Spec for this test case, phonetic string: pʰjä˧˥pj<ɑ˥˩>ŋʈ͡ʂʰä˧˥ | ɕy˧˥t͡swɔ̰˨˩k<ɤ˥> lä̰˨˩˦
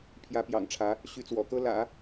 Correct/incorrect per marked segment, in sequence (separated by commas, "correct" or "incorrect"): incorrect, correct